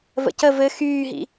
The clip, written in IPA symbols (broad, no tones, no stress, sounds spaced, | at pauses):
v ə̰ c ə v ɘ x yː ɦ ḭ